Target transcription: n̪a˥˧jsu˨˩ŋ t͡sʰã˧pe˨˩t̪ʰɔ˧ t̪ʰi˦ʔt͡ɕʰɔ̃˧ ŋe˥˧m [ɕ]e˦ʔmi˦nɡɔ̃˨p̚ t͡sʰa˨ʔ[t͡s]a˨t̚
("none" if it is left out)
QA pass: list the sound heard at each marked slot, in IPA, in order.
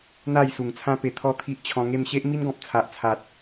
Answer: ɕ, t͡sʰ

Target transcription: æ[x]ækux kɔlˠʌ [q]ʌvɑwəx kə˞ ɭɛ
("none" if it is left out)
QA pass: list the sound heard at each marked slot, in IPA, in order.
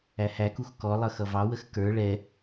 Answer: h, x

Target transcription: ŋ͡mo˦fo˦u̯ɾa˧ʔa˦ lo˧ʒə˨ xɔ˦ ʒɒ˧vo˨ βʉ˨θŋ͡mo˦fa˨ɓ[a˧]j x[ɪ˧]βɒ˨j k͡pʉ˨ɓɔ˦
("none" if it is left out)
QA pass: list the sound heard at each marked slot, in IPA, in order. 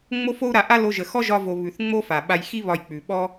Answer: a˧, i˧

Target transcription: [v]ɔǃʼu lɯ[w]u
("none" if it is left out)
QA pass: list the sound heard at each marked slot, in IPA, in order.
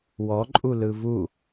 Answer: w, v

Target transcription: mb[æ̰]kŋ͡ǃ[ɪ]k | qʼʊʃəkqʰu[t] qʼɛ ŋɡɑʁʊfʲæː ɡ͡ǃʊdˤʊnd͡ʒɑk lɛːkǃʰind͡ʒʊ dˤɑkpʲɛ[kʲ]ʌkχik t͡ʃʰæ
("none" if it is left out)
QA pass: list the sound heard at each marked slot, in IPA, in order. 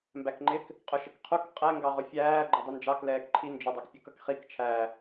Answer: æ, ɪ, k, k

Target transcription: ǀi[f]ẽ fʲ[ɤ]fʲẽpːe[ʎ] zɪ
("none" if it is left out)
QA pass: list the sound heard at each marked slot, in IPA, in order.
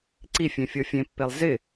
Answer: fʲ, ɤ, lˠ

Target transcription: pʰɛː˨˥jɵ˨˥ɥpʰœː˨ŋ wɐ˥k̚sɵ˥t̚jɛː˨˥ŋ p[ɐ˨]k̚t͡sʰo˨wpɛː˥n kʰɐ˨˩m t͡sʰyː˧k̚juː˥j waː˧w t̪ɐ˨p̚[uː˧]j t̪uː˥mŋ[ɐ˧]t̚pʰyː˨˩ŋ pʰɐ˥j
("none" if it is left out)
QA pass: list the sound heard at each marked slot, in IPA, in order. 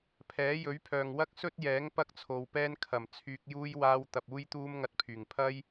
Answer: ɐ˥, uː˥, ɐ˧

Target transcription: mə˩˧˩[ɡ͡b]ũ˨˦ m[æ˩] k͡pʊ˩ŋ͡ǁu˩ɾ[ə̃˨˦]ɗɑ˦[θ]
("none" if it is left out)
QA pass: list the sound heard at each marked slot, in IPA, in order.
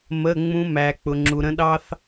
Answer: ŋ͡m, æ˩, ə̃˨˦, θ

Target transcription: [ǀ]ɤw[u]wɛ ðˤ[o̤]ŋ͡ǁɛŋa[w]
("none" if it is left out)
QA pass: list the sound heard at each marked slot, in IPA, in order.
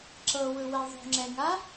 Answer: ǁ, ɯ, o̤, none

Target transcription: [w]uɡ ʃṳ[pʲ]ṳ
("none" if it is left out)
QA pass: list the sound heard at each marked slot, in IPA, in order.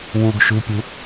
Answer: w, pʲ

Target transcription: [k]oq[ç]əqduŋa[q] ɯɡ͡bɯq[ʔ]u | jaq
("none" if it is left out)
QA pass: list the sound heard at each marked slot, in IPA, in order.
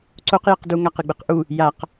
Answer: ǀ, j, q, ʔ

